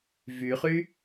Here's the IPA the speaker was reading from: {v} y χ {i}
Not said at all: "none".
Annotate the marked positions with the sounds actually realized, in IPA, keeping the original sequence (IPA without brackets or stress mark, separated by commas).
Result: v, y